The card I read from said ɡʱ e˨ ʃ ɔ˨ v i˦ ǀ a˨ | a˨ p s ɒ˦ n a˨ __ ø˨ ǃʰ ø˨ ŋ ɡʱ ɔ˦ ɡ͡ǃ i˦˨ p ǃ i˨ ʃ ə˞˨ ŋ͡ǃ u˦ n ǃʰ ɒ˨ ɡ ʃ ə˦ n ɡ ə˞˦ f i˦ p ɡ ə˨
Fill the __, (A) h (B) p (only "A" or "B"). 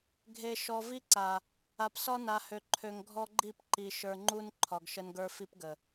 A